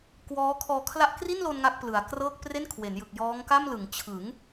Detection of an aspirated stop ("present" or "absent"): present